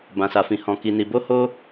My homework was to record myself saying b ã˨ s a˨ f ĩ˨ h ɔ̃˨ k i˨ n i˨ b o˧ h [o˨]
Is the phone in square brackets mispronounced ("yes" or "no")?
yes